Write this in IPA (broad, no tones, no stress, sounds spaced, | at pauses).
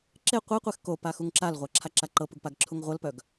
ǁ e qʷ e qʷ e x k o p a x u ŋ ǁ a l ʁʷ a ǁʰ a ǁ a ǃ ɤ p u ɡ p a ɡ ǁʰ u ŋ ʁʷ ɤ l p œ ɡ